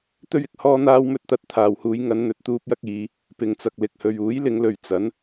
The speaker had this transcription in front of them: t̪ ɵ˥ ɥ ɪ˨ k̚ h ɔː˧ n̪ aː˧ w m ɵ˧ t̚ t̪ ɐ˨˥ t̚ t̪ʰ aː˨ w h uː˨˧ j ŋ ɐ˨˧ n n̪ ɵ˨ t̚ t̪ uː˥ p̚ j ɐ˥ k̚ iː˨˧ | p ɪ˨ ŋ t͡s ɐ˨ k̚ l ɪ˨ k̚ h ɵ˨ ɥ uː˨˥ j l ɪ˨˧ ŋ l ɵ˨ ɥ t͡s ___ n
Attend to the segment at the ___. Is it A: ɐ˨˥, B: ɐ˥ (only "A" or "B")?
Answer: A